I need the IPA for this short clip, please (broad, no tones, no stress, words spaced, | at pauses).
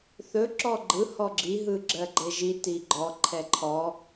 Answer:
θɵ ǁɔɡ͡ǃɯ hɔɡ͡ǁi ɦɯɡ͡ǁɜɡ͡ǃɘʒi tiɡ͡ǃɔ ǃʰɛǃʰɔ